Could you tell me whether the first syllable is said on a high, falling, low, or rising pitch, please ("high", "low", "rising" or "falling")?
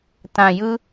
low